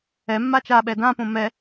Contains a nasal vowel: yes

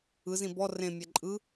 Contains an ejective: yes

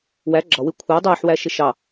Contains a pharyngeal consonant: yes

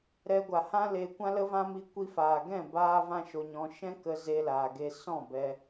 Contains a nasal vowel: yes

